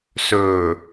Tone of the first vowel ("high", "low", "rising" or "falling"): low